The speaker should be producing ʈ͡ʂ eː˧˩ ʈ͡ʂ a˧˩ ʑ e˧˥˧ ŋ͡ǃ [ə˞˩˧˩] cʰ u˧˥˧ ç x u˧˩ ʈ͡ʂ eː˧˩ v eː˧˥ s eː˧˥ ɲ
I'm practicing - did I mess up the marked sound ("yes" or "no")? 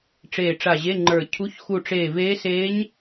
yes